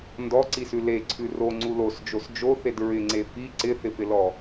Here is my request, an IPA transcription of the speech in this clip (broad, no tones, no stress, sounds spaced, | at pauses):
n d ɔ ǀ i s ʉ l e ǀʰ ʉ r o ŋ͡ǀ u l o s d͡ʒ o s d͡ʒ o θ e d ɹ ɪ ŋ͡ǀ e f i ǀ ɪ θ ɪ f ɪ l ɔ